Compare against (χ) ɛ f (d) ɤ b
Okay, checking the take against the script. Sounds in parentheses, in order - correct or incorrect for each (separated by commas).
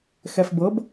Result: incorrect, incorrect